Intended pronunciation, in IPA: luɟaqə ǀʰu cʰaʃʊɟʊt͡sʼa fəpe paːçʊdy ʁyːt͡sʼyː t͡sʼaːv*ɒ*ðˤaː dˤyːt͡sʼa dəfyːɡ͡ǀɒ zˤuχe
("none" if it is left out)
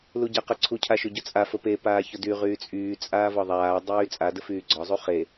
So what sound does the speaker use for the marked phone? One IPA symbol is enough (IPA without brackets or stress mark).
ɒ